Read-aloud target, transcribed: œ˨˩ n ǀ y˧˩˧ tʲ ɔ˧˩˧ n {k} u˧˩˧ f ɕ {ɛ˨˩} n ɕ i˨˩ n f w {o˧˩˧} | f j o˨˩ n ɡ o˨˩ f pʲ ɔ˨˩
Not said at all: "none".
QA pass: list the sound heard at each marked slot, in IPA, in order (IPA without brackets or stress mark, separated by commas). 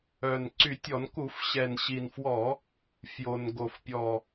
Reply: k, ɛ˨˩, ɔ˧˩˧